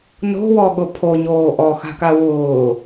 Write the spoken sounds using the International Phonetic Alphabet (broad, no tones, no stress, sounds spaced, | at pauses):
n o̤ w ɔ ɠ ʊ pʰ o ɲ oː ʔ ɔ x a̤ k a w ʊː